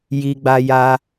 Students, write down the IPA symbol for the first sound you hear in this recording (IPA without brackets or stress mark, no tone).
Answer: j